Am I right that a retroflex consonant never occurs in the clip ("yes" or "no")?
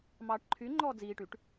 no